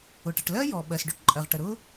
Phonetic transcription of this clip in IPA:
ʊ˩ʈə˩ʈlɜ˥ jɔ˩ ɓɜ˩sɖɵ˥ʈǃʼɜ˩ʁ ʈə˩ɾʊ˥

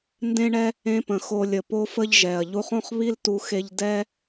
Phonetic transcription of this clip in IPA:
ndẽ˦ɳɛ˦ | ẽ˧pə̃˨ xo˧lʲə˨ po˦fə˦ʎʒɛ˨ɐ̯ ʎu˧χõ˦χβi˦ltu˧ xe˦ʎ dɛ˦

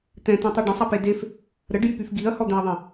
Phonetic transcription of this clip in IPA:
t̪ɛ̃t̪ẽtˤy ɖə̃sˤape def | ɾəɖjypyf ɡiɐ̯hɔd̪ɛ̃ɐ̯ðˤẽ

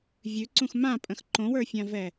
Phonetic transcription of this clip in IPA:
vʲʉǀũx mãpʼə̃x ǃõwə˞fʲãvɛ

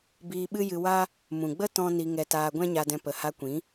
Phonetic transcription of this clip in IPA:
biː˧ɓɨ˦jɨ˧ wa˦ | mũ˨ɡ͡bə˦ tɔ̃˦ ni˧ŋɛ˧taː˧ ɡʷɛ̃˦ɲa˧dɛ̃˧ pə˨ha˧kʷĩ˨˦

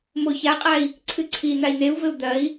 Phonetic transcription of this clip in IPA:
moçaqʼai̯ | ǀʰɨǀʰi n̪ai̯n̪eu̯vɘu̯ d̪ɐi̯

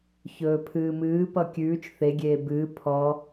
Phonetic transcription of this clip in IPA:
çɵːpʰɨːmɨː pʌkʲʉːt͡ʃ θeɡʲeː bɨː pʰɔ

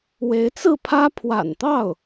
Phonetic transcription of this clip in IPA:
we˧˥ɪ̯t͡sɹ̩˥˩pʰä˥ pʰwa̰˨˩nt̪ɑ˥˩ʊ̯

